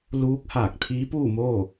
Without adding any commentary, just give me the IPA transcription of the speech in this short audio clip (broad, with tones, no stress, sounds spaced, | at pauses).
l uː˧˥ k̚ h aː˧˩ k̚ t̪ʰ iː˧˥ p uː˥˨ m oː˥˨